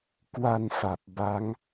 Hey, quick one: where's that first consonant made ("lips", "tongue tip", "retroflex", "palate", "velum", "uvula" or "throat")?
velum